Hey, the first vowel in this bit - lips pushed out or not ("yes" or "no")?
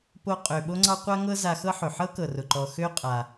yes